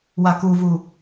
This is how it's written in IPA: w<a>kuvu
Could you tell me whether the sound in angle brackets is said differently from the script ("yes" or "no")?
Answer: no